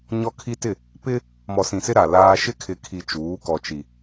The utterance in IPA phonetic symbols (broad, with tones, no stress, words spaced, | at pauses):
ɲɔ˦kʰi˦tɪ˦˨ | pɪ˦ | mɔ˨sĩ˨sɪ˦ ɾa˨laː˦ ʃɪ˦kʰɪ˨kʰi˨ t͡ʃuː˨˦kɔ˨t͡ʃi˨